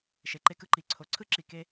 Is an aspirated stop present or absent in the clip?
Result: present